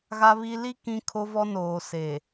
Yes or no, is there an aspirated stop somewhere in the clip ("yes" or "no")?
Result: yes